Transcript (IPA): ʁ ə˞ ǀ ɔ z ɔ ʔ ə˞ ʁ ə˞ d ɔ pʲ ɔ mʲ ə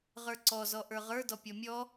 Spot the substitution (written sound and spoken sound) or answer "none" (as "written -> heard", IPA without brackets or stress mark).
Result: ə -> ɔ